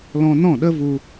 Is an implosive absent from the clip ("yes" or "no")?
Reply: no